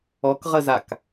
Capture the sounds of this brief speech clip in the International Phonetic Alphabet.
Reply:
ɔ k ʁ ə z a k

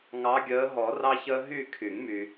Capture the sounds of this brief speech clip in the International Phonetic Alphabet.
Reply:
ŋ ɑ˨˦ ɡʲ əː˨˦ ɦ ɔ˨˩˦ r ɑ˦ ç əː˦ ɦ y˥˨ kʰ y˨˩˦ ŋ m y˨

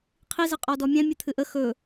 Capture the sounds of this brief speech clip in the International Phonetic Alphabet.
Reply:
qʰ i z ə qʼ ɔ d ɔ mʲ ɛ̃ mʲ ɨ t̪ʰ ɨ ʔ ə x ɵ

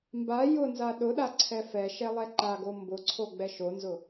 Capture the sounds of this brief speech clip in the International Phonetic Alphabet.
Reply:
m b a j ʊ n z a ɗ ʊ ɗ a ǀʰ ɛ f ɛ ʃ ɛ lˠ ɛ ǃ a ɡ o m b ʊ ǀʰ o ɡ͡b ɛ ʃ o n z ʊ

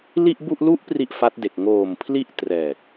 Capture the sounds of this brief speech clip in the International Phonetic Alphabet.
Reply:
l i˥˩ ʔ b u˥˩ ʔ l u˦˥ ʔ p r i˥˩ ʔ f a˦˥ t̚ d e˨˩ k̚ ŋ oː˨˩ m pʰ l i˦˥ ʔ t r ɛː˨˩ k̚

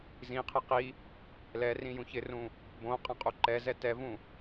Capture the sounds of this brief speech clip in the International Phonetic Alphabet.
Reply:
z ĩ qʰ e q i | l ɛ r ĩ j ũ ç ɪ r ũ | b õ qʼ ã qʼ u ǃ ɛ z ɛ t ɛ v ũ

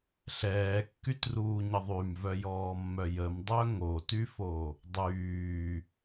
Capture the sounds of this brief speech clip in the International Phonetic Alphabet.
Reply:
ɬ ɛː kː y t r uː ɲ ə ðˤ y m v œ j ɔː mː œ j ə m dˤ œ ŋ o t y f o | dˤ yː

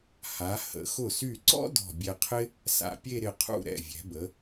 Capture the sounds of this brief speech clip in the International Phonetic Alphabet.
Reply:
h a˩˧ h ə̰˩˧ x ʊ˧˩ s y˧˩ ǀ ɔ̰˥ d ɔ̤˧˩ bʲ ɛ˧ qʰ ɪ˥ | s a̰˧ pʲ e˥˧ ɾ ɪ˧˩ qʰ ṵ˥˧ ɾ ɛ̰˧˩ vʲ ɛ̤˩˧ b ə˩˧

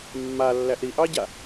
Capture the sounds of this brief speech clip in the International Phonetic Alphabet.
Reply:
mː a lː æ ʔ ɾ i ʔ ɑ ɟ a

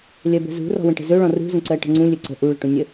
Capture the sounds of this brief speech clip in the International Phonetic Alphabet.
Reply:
lʲ ɜ b ə̤ z ṳ r ɔ̤ w ə̃ ʈ ə̤ z ɵ ɭ ɔ̃ r ṳ z ə̃ ǀ ɜ ʈ ə̤ ŋ͡ǀ ũ lʲ ɵ ǀ ə̤ ʔ u ɭ ə̤ ʈ ũ nʲ ə

